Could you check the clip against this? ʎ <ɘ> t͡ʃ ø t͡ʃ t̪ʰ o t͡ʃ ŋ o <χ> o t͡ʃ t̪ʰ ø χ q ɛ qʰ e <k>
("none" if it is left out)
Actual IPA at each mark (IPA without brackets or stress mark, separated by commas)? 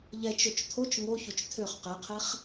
ɛ, ç, χ